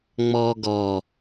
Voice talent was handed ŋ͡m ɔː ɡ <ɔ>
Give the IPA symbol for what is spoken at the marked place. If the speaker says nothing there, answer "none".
ɔ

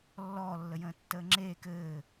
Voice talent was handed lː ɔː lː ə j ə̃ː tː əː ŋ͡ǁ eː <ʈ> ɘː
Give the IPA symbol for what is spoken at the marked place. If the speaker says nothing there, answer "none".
k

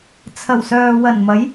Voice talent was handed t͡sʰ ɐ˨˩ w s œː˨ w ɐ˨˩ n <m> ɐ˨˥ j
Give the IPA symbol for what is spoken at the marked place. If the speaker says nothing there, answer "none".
m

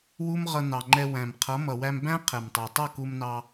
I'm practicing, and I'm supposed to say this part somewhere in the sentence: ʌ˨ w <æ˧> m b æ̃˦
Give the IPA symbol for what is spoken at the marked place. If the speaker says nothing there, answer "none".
æ˧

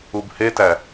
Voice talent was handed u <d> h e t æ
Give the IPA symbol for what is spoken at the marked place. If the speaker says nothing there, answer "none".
b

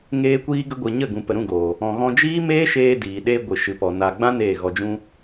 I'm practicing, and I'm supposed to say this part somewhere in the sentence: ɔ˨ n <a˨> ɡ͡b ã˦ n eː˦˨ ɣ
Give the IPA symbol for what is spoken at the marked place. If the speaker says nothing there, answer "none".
a˨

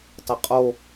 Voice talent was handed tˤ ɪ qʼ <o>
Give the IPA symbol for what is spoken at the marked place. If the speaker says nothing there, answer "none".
o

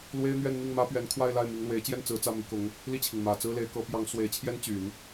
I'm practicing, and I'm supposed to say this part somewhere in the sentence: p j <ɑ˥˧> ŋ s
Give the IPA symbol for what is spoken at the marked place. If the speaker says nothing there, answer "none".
ɑ˧˥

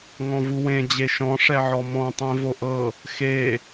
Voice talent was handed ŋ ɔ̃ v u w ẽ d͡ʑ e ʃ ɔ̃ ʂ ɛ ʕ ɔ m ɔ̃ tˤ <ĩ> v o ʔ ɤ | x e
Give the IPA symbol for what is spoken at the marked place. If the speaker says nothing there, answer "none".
ẽ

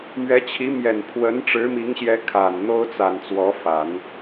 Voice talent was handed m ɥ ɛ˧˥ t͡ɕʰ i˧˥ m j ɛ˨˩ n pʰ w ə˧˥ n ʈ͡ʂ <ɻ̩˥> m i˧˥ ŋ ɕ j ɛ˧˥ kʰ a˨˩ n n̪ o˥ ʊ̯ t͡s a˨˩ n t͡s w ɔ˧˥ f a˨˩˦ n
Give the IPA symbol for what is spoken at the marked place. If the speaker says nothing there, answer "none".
ɻ̩˧˥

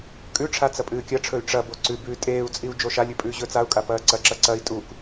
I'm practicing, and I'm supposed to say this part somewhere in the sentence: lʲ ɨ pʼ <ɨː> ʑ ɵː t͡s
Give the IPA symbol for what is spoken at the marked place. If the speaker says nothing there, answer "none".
ʉː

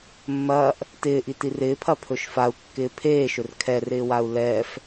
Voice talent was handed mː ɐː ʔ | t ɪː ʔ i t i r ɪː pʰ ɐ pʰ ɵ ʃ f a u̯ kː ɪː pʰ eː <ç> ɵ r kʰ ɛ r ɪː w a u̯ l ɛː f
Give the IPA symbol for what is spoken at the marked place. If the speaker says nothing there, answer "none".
ʃ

